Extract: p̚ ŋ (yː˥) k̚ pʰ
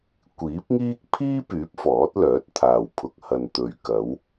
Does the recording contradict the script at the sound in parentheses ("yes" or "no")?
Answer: yes